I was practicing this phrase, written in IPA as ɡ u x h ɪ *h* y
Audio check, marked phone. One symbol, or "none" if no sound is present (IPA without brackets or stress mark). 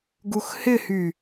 h